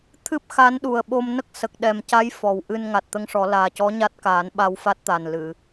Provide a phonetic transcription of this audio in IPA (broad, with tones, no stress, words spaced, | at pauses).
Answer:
t̪ʰɨ˦˥p̚xa˧˥n ɗu˨˩ə̯ ɓo˧mnə˦˥k̚ sə˨˩k̚ɗɛ˨˩mca˧˥j fɔ˨˩wʔɨ˧n ŋa˨˩t̚t̪ə˧˥ŋʂɔ˨˩˦ laː˨˩cɔ˧˥ ɲa˦˥t̚kaː˨˩˦n ɓa˧wfa˦˥t̚t̪a˨˩nlɨ˨˩˨